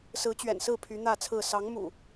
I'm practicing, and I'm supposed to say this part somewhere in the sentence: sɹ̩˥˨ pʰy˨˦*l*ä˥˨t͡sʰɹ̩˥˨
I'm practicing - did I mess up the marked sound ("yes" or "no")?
yes